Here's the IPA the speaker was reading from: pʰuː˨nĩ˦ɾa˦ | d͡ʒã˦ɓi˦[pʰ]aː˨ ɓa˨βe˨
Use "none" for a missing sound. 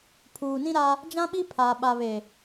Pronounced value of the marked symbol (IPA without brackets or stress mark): pʰ